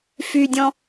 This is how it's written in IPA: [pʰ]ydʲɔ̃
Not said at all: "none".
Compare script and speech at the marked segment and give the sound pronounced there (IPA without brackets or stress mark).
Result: f